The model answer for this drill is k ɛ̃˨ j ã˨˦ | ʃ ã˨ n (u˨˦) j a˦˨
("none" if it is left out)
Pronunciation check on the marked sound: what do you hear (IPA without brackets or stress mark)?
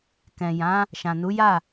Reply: u˨˦